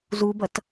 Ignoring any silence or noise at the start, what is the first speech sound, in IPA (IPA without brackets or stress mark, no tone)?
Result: z